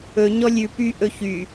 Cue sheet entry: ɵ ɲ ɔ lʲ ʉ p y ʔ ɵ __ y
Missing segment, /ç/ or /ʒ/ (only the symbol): ç